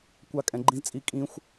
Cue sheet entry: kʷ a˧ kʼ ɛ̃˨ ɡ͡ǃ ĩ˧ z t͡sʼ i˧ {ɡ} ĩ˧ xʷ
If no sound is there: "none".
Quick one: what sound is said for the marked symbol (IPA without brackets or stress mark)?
kʼ